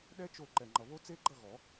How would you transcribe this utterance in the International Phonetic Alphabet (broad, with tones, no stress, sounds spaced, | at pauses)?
ɗ ɛ˦˥ t͡ʃ o˥˨ ǃ ɛ˨ ŋ͡ǃ ʌ˨ β o˦˥ t͡s e˦˥ ɡ͡ǃ ʌ˥˨ ɣ ɔ˨˩˦